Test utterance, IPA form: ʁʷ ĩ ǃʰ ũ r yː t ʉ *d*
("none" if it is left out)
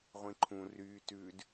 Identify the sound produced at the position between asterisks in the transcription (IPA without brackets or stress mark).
d